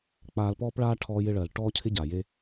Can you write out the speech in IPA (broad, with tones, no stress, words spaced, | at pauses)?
k͡paː˧lpɔː˦pɭaː˦ ʈʰɔː˦jɪ˦ɭɜ˨l ʈɔː˦cʰɪ˦ ɟa˨je˦